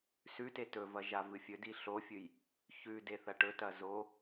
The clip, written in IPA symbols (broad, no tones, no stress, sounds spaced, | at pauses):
s ʉ t e t ɵ v ɐ ʒ a v ɨ fʲ ɵ d i ɬ o fʲ ɨ j | ç ʉ d e θ ɐ ʈ ɵ t ɐ z o